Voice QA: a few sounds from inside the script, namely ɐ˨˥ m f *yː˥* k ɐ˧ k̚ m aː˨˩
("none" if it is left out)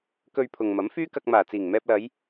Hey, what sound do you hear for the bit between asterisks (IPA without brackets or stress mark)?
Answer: yː˥